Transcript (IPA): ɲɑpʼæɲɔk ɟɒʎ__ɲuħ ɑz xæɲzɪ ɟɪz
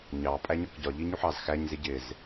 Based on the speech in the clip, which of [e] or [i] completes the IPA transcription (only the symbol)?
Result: i